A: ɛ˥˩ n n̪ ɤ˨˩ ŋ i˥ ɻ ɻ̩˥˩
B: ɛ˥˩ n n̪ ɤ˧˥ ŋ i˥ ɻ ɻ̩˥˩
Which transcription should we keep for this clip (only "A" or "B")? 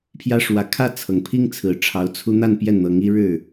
B